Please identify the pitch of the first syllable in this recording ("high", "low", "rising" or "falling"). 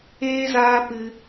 high